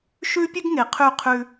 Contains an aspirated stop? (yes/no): yes